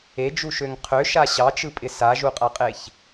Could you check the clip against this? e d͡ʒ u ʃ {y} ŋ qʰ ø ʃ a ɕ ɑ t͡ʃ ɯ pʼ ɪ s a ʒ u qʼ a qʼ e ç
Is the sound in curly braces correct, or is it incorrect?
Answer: incorrect